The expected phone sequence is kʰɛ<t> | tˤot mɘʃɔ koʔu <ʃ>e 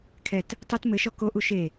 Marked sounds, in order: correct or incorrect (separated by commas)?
correct, correct